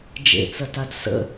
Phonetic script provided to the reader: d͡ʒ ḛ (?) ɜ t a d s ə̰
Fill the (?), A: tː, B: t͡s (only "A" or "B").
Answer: B